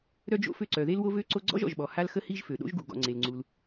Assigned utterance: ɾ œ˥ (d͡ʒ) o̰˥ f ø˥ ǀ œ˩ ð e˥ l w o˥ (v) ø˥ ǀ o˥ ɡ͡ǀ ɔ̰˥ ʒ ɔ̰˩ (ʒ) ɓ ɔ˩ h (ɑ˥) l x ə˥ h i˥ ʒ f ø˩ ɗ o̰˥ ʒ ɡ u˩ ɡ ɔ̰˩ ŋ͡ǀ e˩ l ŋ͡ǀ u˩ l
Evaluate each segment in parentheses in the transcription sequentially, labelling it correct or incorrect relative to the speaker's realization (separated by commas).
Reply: correct, correct, correct, incorrect